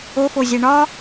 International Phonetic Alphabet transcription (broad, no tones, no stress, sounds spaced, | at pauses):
o f o zʲ æ ɳ ɒ